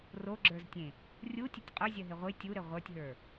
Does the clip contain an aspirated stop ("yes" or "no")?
no